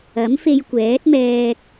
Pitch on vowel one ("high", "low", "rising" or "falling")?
rising